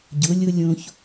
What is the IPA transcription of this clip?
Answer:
ɟʊ˨˦lʲʊ˦ lʲõ˦ç

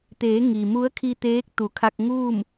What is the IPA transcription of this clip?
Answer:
t̪eː˩˧ ŋi˩ mu˧˥ə̯kʰi˧t̪eː˧˥k̚ t̪u˩˧kʰa˧k̚ ŋuː˥˨m

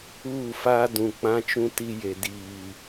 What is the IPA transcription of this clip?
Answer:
uː˦˨faː˦ dũ˨k͡pã˦t͡ʃũ˦ ti˦je˨ diː˨

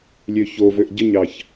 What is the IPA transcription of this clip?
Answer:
lʲøçovøʔ ɟəɲɑç

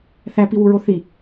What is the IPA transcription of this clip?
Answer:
θæpiwuɹo θi

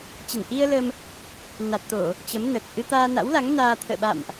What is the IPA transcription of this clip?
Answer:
t͡ɕə˧˩n ʔi˧ə̯ lə˧m | na˨˩t̚t̪o˧˩˨ | t͡ɕə˨˦mnə˨˩t̚ ʔɨ˧t̪aː˧na̰˧˥wla˨˦ŋ naː˧ t̪ʰə̰ː˧˨ɓa̰˧˨mʔ

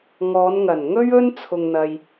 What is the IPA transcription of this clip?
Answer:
ŋɔː˨˧nŋɐ˨˩n ŋɵ˥ɥɵ˥n t͡sʰʊ˧ŋn̪ɐ˧j

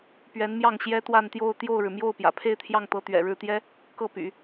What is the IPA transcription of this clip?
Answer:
pɥɛ˧˥nmjɑ˥˩ŋ ɕjɛ˥t̪wa˥˧nt̪jo˥˧ʊ̯ t̪jo˥˩ʊ̯ɻɻ̩˩ mjo˥˩ʊ̯ pjä̰˨˩pʰe˥˧ɪ̯t̪ʰjɑ˥˩ŋt̪ɤ˧˥ t̪ɥɛ̰˨˩ɻɻ̩˥˩t̪jɛ˥ | kɤ˥˩py̰˨˩˦

